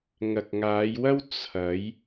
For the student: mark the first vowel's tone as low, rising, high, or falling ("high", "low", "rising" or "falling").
low